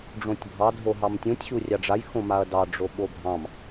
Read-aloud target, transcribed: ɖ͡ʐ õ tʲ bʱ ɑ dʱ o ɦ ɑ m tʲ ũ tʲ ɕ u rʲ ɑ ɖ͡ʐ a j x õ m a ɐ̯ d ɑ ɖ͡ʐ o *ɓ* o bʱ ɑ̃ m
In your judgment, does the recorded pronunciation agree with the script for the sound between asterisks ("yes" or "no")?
yes